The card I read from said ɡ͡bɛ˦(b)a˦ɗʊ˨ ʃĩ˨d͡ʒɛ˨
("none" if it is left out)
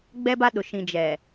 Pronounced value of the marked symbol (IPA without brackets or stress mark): b